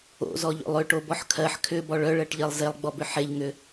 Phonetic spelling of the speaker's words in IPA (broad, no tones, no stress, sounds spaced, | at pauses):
o̰ z ɔ ʎ o̰ lˠ ʏ ʈ o b ɔ ħ kʰ ɜ ħ kʰ ʏ b ɔ ɭ œ ɭ ɜ ʈ ʎ ɜ lˠ z e lˠ ɡ͡b ɔ b ʏ ħ e ʎ ŋ ʏ